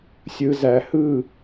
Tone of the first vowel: low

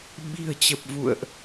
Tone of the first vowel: low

